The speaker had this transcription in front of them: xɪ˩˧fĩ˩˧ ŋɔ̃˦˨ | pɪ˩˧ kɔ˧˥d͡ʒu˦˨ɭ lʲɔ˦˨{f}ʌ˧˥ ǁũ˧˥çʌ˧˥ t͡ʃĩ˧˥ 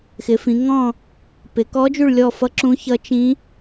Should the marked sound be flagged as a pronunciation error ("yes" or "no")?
no